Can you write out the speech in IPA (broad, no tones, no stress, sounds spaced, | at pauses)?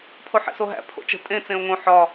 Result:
pʰ o ħ ḛ s o ɦ æ̰ pʰ o̰ t͡ʃ ə̤ tʼ ẽ t͡s ẽ o̯ ŋ õ ħ ɒ